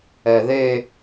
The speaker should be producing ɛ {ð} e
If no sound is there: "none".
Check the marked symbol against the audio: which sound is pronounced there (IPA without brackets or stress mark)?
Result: ð